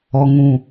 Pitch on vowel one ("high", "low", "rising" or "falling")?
low